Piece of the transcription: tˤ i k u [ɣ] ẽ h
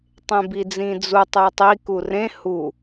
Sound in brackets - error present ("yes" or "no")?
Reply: yes